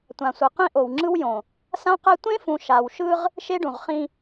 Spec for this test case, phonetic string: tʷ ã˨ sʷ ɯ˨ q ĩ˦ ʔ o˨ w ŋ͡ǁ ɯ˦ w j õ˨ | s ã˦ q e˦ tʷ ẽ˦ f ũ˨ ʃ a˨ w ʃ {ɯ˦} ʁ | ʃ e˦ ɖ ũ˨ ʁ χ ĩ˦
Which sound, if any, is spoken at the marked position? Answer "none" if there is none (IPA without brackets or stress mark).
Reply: ɯ˦